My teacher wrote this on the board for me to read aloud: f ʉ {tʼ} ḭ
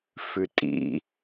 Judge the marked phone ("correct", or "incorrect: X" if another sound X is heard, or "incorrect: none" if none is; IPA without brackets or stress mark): correct